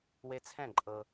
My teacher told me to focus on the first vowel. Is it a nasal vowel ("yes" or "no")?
no